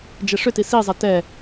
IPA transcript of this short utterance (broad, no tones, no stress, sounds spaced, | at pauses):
d͡ʒ ɛ ʂ ʏ t i s i zˤ ɛ t ɛ